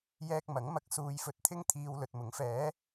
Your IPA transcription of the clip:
jɛː˧k̚mɐ˨˥ŋmɐ˧k̚ suː˨jfɵ˨t̚t̪ʰɪ˧ŋt̪ʰiː˨w lɵ˨t̚mʊ˨˥ŋfɛː˨˥

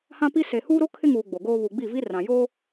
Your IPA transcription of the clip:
hã˦pi˦ se˨huː˦ɾo˦ kʰɪ˦ŋuː˨ ɡ͡bo˨ɡoː˦ βu˨ɡ͡bi˦˨vi˦ rã˨joː˦

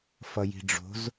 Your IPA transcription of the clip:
fʌji̤ɖ͡ʐo̤z

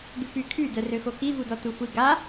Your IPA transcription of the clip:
dupykʰy dœrøxoki vudɔtuxʷi ɡa

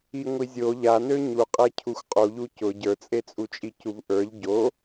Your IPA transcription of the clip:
iŋʷizʲo ʎanø ɲuqʼe cʰuxʷqʼu ʎucʊ ɟə˞t͡sʼet͡sʼut͡ʃʼi cuvʔə˞ʎ ɟo

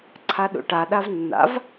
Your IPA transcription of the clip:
ǀʰaɗṵʈa ɗavnːa̰v

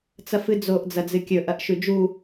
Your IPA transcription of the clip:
t͡sɐfɨd͡zoʔ d͡zɐd͡zɨkʲɵ ʔɐʔʃʉd͡ʒu

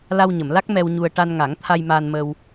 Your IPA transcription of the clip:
la˧wɲə˨˩˨mla˦˥k̚ mɛ˧wɲu˧ə̯ ʈa˧nŋa˨˩˦ŋ t̪ʰa˧jmaː˧nmə˧w

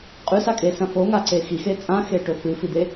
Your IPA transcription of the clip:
qʼʉsakʼesɐ̃ foŋaǀe xixe t͡sʼãxeʈɵ fɨfid̪e

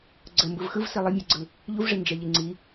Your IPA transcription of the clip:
ɡ͡ǀə mbɯvxɯvsi lˠəmʲɛɡ͡ǀɯ | ʎuvʐi nd͡ʒɛʎiŋ͡ǀi

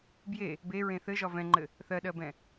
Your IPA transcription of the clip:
bje | beɹẽ θɘʒɒ vɛ̃ŋ͡ǃɘ | θɜɗɜbɛ̃

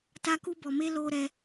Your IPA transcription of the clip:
ta˦ku˦bɔ˧me˦ loː˦ ɾɛ˦

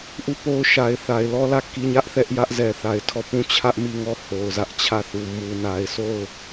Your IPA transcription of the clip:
ʔu˦˨po˦ʊ̯ʃa˨ɪ̯θa˨ɪ̯ lɔ˦lä˦˨ ki˦ɲä˦ʔθɛ˦ʔ jä˦ʔzɛ˨θa˨ɪ̯tʰɔ˦˨ pũ˦˨t͡ɕʰä˦ʔmi˦˨ŋɔ˦˨ ho˨ʊ̯zä˦ʔt͡ɕʰä˦˨θu˨ mu˨na˨ɪ̯so˦˨ʊ̯

